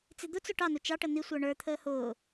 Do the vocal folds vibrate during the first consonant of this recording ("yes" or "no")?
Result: no